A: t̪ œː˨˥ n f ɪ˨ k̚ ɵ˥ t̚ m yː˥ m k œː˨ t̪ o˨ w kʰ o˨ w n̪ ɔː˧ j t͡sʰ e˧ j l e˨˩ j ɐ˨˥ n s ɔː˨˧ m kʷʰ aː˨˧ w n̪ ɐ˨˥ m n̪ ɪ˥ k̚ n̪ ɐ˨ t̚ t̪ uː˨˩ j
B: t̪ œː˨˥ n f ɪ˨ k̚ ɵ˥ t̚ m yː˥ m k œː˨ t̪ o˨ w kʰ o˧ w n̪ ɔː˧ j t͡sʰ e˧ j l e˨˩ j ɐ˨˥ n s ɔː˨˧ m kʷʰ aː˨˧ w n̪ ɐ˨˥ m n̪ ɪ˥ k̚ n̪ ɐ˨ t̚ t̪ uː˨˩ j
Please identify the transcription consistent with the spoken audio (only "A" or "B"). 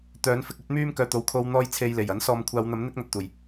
B